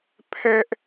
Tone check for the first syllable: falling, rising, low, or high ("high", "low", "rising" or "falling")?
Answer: high